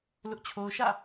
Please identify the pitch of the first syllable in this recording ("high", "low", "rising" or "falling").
high